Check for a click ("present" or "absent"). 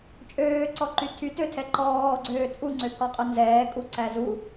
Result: present